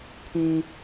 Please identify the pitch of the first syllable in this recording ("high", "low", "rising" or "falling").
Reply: high